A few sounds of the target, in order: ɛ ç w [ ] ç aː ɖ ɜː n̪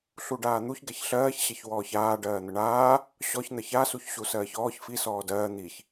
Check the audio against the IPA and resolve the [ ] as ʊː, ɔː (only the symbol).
ɔː